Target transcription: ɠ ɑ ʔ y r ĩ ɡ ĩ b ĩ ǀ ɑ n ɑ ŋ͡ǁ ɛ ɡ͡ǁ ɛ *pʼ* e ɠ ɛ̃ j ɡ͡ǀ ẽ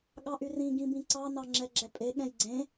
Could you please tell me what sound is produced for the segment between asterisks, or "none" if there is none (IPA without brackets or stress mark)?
pʼ